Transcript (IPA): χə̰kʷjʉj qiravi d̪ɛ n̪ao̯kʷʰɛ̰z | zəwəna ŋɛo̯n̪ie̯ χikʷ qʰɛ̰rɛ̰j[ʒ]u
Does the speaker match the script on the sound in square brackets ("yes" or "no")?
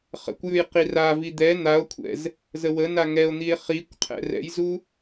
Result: no